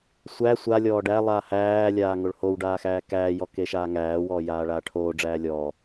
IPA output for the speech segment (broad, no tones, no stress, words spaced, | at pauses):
sʷæ sʷa lʲɔːɖælˠaː hæːlʲaː ŋoɭhowɖaː xæːkæːjɔ keʃaːŋæːwɔː jaːɭaːʈʰoːɖ͡ʐæː lʲɔ